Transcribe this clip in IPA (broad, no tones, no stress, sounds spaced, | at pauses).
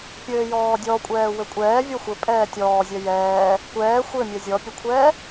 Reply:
pʲ ɘː j ɔː dʲ ɔ kʷʼ ɛː w ɘ kʷʼ ɛː vʲ ɔ xʷ ɘ pʼ ɛː tʲ ɔː zʲ ɛ j ɛː | kʷ ɛː xʷ ɘ mʲ ɛ zʲ ɔ pʲ ɘ kʷʰ ɛː